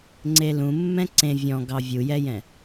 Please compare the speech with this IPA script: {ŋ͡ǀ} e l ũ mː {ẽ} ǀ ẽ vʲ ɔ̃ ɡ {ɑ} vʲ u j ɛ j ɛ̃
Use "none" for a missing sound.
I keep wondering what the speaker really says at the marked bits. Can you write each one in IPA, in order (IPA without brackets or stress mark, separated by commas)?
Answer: ŋ͡ǀ, ɛ̃, ɑ